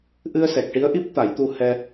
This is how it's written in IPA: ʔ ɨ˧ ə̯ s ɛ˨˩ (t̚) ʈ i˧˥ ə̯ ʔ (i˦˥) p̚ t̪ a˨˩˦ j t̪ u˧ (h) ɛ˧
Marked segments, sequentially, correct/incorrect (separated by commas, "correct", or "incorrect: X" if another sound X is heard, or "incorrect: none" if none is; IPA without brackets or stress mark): incorrect: k̚, correct, correct